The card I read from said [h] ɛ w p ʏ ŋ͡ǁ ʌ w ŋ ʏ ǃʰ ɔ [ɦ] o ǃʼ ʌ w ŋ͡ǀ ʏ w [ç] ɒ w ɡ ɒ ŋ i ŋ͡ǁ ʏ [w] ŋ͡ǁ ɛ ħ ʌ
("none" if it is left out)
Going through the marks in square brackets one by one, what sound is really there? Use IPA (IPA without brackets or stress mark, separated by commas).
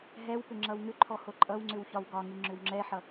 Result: ɦ, h, ç, w